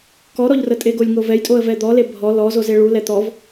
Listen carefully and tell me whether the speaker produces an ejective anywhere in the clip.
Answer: yes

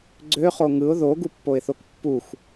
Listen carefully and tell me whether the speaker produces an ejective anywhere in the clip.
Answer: no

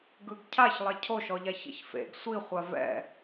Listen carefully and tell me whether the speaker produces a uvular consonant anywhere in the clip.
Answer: yes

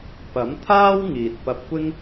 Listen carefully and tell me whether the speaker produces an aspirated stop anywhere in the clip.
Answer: yes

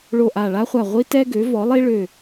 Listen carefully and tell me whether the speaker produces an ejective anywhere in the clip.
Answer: no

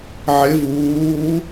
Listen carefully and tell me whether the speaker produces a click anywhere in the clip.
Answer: no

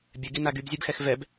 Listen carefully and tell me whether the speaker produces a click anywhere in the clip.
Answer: no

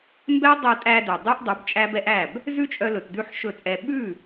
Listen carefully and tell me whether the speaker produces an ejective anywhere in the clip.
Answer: yes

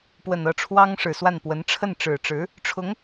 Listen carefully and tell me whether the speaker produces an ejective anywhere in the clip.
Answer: no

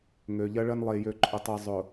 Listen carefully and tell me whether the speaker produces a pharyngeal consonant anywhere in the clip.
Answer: no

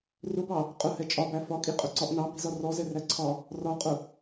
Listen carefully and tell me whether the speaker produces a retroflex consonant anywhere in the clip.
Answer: no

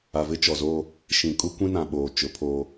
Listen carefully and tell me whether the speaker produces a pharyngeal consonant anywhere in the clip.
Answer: no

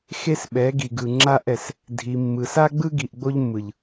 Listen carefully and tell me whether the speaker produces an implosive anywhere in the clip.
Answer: yes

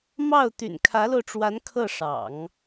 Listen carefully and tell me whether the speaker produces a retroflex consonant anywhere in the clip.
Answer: yes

